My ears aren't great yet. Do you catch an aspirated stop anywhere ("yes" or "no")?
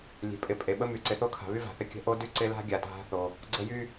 yes